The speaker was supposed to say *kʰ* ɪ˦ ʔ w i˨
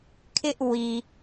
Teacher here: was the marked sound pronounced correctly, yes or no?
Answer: yes